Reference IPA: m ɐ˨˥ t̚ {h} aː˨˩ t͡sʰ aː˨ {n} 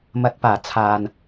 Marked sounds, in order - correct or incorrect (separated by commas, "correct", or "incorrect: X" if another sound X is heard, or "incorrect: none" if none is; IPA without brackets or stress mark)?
incorrect: p, correct